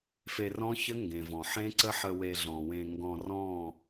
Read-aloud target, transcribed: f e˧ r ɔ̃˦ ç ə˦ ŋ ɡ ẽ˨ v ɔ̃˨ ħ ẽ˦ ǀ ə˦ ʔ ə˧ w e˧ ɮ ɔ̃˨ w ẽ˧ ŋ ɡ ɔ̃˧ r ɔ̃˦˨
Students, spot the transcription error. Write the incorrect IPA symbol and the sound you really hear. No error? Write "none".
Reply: ʔ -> ħ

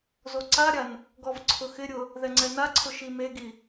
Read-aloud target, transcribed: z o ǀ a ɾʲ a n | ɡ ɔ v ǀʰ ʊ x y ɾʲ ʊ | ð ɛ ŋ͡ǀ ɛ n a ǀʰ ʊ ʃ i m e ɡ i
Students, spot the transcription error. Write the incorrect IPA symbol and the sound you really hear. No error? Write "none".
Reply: y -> ɪ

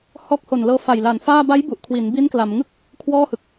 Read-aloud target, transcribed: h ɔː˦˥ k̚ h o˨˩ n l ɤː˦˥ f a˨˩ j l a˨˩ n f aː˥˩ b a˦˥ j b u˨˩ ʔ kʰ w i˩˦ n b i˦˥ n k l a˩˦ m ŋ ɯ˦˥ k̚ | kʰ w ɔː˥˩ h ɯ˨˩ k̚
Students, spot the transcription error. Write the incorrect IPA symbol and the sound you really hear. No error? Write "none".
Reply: none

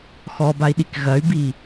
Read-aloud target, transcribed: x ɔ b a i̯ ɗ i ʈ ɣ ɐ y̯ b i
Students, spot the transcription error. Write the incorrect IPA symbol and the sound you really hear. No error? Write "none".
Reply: ʈ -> k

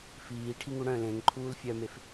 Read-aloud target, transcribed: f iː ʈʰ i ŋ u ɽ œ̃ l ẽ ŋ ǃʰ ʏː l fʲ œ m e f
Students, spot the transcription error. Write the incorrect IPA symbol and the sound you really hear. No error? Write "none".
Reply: ʏː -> uː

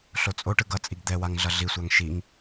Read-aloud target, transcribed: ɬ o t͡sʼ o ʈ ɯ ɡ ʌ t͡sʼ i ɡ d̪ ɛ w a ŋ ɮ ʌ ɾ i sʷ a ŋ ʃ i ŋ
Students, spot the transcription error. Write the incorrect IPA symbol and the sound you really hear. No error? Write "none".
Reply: ɾ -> ɮ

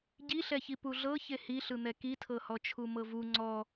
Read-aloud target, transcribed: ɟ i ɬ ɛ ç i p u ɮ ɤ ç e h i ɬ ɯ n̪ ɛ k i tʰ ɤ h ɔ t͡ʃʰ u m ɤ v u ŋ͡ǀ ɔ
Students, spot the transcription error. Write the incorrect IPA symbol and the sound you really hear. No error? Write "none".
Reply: none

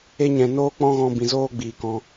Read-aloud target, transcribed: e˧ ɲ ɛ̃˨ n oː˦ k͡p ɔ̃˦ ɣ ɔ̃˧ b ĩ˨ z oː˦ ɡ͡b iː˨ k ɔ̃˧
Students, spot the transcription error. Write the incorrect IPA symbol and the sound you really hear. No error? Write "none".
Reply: none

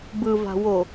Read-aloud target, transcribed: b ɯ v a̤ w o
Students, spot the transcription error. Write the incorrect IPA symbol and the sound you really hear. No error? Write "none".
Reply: none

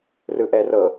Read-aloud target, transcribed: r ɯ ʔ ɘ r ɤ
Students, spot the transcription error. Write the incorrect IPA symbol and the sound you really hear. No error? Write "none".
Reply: ɘ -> ɛ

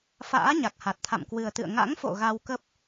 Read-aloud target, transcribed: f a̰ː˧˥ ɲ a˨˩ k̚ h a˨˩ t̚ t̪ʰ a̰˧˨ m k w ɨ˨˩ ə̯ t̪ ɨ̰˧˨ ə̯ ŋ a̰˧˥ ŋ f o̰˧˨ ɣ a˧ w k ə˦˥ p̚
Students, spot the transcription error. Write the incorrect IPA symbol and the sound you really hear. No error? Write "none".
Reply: none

